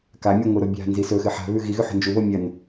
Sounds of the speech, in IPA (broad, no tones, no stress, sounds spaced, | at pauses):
k a mʲ o ŋʷ ɨ ɾ o bʲ a̤ n z i s ɵ x ɨ ħ a̤ β ʉ ɣ i ɣ ʉ ħ o̤ n d͡ʒ u β o mʲ ɐ n